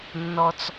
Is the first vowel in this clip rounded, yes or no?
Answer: yes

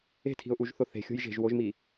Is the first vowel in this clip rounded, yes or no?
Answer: no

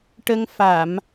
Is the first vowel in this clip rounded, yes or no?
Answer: no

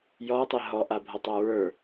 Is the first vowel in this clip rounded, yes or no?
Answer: yes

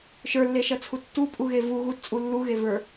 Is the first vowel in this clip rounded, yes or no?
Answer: no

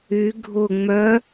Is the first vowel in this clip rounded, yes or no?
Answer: yes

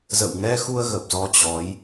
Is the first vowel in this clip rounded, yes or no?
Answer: no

